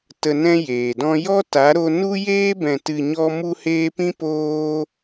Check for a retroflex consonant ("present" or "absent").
absent